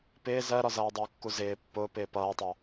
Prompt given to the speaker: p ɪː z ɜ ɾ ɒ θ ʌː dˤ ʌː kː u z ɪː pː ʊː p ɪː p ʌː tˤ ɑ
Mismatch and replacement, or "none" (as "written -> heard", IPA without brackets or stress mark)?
θ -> z